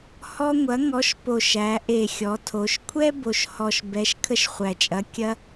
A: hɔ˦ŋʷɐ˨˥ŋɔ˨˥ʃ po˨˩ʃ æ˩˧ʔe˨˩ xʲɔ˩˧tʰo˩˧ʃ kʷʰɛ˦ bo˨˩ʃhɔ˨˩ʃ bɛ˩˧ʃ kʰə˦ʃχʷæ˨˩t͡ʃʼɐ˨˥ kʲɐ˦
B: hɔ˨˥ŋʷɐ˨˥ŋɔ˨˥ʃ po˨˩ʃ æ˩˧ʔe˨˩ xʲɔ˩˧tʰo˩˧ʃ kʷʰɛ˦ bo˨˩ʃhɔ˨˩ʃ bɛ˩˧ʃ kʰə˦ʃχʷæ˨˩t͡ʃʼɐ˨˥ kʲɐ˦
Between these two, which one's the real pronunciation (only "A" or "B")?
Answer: A